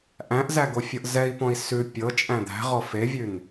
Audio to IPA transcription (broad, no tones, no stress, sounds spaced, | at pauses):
ʔ æ̃ ʔ z æ ɡ o fʲ ɤ ʔ z ɛ i̯ p ɔ̃ i̯ s ʉ pʲ ɤ t͡ʃʼ æ̃ d̪ æ̤ ʁ ɔ f e vʲ ʉ n